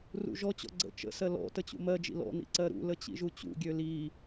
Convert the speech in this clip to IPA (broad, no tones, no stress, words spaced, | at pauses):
rṵʒɔt͡ɕɔ̰ ɡ͡ǀə̰ t͡ʃə̰sɜ lɔ̰ tət͡ɕṵmɜd͡ʒḭ lɔ̰nḭ ǀɜɾṵlə t͡ɕḭʒut͡ɕṵɡʲø li